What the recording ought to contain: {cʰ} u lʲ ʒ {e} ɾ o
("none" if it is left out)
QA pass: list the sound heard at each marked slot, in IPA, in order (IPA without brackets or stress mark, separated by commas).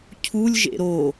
cʰ, ḛ